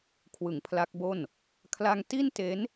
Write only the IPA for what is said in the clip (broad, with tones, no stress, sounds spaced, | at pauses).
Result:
kʰ w ɯ˩˦ ŋ pʰ l a˦˥ k̚ b o˥˩ n | kʰ l a˧ ŋ t i˥˩ n t e˦˥ n